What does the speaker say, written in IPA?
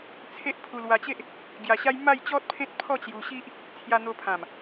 t͡sʰ e˦ ʔ pʰ u˧ l w a˧ t͡ɕ e˦ ʔ | ɡ j a˧ ɕ a˦ j m a˥˧ j t͡ɕ ɔ˦ t̚ pʰ ẽ˦ t̚ pʰ ɔ˥˧ t͡ɕ j u˧ ɕ i˦ ʔ | t͡sʰ j a˧ n̪ o˧ pʰ ã˨˩ m

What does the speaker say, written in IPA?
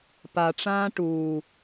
p a ʈ͡ʂ ãː ʈ uː

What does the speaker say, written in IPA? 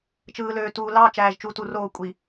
t͡ʃ ɯː˨ l øː˨ t uː˨ l ɑ˦˨ t͡ʃ æː˨ ʒ t͡ʃ u˨˦ t u˨ r oː˦˨ kʷʼ i˨

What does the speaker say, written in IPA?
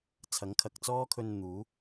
t͡sʰ ɐ˨˥ ŋ kʰ ɐ˨ k̚ t͡s ɔː˥ kʰ ɵ˧ n n̪ uː˨˥

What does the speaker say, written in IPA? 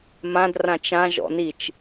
m ã d r ã t͡ʃ ã ʒ ɔ̰ n i t͡ʃ

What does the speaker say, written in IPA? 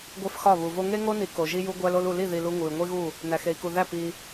ɡʷ e˦ f x ɒ˦˨ β u˨ v o˦ ŋ e˦ ŋ o˦ n i˨ k o˨ ʒ i˦ j u˦ ɡʷ æ˦ l o˦ l u˨ l i˦˨ ð i˨ l u˦ ŋ u˨ y̯ ŋʷ i˦ ɣ u˦˨ | n æ˨ x e˨ i̯ k u˨ ð æ˦˨ p i˦

